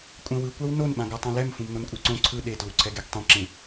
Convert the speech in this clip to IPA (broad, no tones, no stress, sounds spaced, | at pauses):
kʷʼ ɛ̃ w ɯ kʷ a w n o n ɓ ã ɡ a tˤ ã l ɛ m f ũ m n o n kʷʼ e ǀ õ ǀʰ ɯ ɗ e t l u ǀʰ ɛ ɡ e ɡ tˤ ẽ ǁ ẽ